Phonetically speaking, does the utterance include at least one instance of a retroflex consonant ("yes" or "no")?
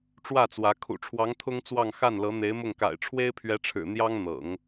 yes